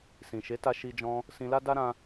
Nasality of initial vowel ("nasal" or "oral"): nasal